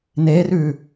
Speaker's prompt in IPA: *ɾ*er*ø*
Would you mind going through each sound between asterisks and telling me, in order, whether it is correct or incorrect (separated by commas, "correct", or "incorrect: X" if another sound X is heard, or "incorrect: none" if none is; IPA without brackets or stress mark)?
incorrect: n, incorrect: ʉ